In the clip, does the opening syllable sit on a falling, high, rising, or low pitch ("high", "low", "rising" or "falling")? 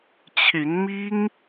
rising